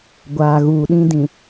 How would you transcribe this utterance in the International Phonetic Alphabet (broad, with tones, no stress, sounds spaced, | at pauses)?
ɡʷ aː˨ ɣ uː˨ ɗ ĩ˦ d ĩ˨